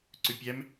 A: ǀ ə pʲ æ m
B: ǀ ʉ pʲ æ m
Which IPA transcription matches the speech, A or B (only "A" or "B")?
B